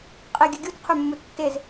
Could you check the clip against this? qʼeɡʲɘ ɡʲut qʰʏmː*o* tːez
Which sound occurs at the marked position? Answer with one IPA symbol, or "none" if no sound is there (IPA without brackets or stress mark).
u